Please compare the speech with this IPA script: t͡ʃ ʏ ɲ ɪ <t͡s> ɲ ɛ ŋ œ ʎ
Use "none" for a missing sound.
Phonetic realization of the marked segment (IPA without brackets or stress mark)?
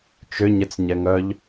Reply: t͡s